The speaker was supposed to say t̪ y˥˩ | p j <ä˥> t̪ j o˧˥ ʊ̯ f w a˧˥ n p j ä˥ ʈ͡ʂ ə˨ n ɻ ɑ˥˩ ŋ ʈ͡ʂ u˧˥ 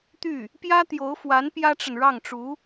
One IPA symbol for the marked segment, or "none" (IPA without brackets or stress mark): ä˥